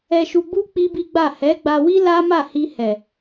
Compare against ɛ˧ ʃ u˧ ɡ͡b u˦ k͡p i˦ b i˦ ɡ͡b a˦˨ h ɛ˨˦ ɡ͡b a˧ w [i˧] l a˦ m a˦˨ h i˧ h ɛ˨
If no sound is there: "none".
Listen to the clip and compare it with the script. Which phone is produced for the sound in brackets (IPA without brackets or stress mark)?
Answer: i˦